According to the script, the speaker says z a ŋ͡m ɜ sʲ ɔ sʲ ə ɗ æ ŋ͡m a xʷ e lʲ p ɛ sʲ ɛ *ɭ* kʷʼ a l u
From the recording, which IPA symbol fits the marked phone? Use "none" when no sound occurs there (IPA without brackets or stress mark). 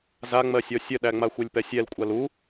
l